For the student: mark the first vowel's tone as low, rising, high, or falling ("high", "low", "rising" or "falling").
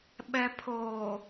low